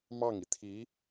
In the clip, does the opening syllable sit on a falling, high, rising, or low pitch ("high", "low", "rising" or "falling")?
falling